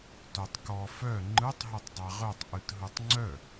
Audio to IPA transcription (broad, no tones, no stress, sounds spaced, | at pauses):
t œ tˤ k ɔ f œ ŋ͡ǃ ɯ tˤ ɦ o tˤ dˤ a ʁ œ tˤ ʔ ɯ t ɦ ɯ tˤ ŋ͡ǀ œ